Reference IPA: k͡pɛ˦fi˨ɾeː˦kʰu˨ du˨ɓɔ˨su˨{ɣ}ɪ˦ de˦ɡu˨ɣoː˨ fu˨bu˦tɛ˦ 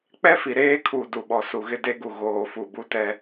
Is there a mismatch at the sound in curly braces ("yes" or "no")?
no